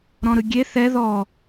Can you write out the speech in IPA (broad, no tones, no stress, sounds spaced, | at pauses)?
ɾ ɔ̃ ɾ ɯ ɡʲ e θ ɛ ð ɔ